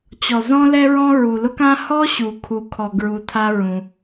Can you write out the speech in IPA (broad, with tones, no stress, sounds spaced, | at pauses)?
t͡ɕ ɔ˩ z ɔ̃˦ l ɛ˦ ɹ ɔ̃˦ ɹ u˩ l ʊ˦ k ã˦ h ɔ˦ ɕ u˩ kʰ u˩ kʰ ɔ˩ ɡ ɹ u˩ tʰ a˦ ɹ ũ˩